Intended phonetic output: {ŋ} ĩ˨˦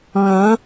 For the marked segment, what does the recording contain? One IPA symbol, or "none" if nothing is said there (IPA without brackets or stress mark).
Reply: ŋ